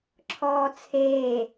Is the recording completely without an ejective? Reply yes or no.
yes